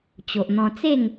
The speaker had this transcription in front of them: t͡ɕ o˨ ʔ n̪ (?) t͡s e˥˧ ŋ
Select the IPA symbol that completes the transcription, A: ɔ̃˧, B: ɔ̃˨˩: A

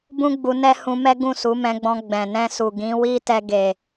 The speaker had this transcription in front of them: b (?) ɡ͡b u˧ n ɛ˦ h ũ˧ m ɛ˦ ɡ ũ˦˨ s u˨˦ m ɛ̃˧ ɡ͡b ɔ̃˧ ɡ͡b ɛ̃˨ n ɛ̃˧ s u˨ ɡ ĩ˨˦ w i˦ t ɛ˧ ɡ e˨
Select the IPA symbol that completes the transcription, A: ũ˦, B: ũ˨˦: A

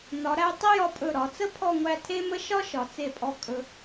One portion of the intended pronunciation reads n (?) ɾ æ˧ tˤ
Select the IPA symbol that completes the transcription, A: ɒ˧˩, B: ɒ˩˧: B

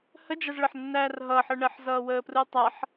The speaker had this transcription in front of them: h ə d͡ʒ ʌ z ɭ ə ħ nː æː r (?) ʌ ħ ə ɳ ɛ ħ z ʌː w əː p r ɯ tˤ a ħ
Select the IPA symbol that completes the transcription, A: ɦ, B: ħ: A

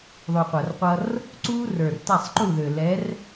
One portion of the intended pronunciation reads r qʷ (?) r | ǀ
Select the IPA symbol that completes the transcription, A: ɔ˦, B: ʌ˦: B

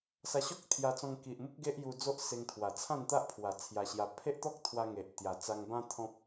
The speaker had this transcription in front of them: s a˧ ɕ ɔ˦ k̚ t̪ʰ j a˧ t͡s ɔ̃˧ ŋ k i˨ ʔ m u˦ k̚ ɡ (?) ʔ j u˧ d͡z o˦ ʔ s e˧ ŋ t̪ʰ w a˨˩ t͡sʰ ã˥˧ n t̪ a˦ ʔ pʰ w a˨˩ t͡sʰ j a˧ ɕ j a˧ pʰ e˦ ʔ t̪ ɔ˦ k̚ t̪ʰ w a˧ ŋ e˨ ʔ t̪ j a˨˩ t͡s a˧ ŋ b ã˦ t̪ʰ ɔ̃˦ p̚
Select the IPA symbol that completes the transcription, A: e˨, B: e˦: B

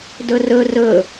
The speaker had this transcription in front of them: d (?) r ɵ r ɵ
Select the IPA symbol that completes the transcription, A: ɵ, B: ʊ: A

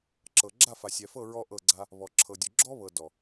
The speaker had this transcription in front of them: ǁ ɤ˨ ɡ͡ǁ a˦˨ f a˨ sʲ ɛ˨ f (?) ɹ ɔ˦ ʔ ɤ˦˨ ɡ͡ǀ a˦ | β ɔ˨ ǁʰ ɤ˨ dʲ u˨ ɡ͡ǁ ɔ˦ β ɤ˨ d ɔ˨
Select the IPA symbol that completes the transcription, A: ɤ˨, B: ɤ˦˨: B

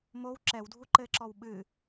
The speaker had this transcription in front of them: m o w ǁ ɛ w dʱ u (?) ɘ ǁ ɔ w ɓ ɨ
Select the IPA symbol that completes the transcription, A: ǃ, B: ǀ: A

